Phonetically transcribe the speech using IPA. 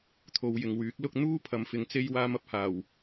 t̪ʰ o˨˧ w j ɪ˨ ŋ w yː˨˥ k̚ l ʊ˥ k̚ n̪ uː˥ pʰ ɐ˨ m f ɪ˨˧ ŋ t͡s e˥ j w aː˧ m ɐ˧ p̚ h aː˨˩ w

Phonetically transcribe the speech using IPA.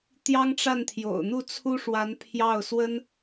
t̪ j ɑ˥ ŋ ʈ͡ʂ a˥˩ n t̪ʰ j o̰˨˩ ʊ̯ n̪ u˥˩ t͡sʰ u˥ ʂ w a˧˥ n pʰ j ɑ˥˩ ʊ̯ s w ə˥ n

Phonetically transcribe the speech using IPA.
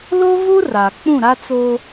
l o˦ v u˦ r a˨ k͡p ũ˦˨ ɾ a˦ t͡s o˦

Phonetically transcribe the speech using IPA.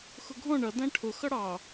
x ʊ ɡʱ ɔ̃ ɳ ʌ d æ̃ ʈʰ ʊ x ʌ ɽ ɑ

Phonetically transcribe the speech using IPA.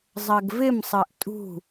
zˤ ɜ ɡ v ɪ m sˤ ɜ ʔ tʼ ṳ

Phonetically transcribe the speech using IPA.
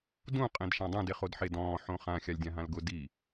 d ũ qʼ ẽ d ʃ ã dˤ ũ d e χ o d ħ e d ɔ̃ː ħ õ χ ã xʲ a lʲ dʲ ã ɦ ã l ɡ ʊ d i

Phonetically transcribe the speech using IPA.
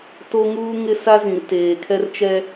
t o˦ ŋ uː˦ ŋ ɪ˦ s a˦ z ĩ˨ r t eː˨ kʰ ɛ˦ r t͡ʃ ɛ˦

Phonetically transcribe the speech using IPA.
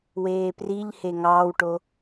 w eː p r i ʎ h e ŋ ɑː w ʈ o

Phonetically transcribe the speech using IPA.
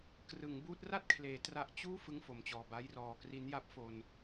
k r ɯ˩˦ ŋ b uː˦˥ t̚ r a˥˩ t̚ kʰ l eː˩˦ t r a˨˩ ʔ t͡ɕ uː˥˩ f ɯ˥˩ ŋ f o˨˩ m t͡ɕ ɔː˨˩ b a˦˥ j r ɔː˨˩ k r i˦˥ n j a˦˥ p̚ f o˧ n

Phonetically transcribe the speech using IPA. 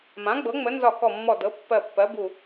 m ã˩˥ ɡ͡b ɤ˩˥ ŋ͡m ə˩˥ n z ɒ˧˩ k ɔ˧˩ mː ɔ˧˩ d ɤ˩˥ pː ɜ˧˩ pː ɜ˩˥ b u˧˩

